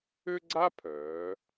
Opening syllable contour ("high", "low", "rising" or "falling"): high